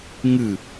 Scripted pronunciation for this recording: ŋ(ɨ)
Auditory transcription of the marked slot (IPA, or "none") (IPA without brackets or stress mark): ɨ